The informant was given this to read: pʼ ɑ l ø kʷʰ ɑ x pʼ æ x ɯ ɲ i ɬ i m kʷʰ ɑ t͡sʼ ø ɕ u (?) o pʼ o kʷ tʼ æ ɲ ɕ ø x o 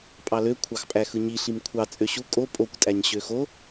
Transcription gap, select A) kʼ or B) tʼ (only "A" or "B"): A